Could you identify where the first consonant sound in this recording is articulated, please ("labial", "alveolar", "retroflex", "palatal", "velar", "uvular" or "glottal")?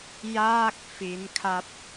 palatal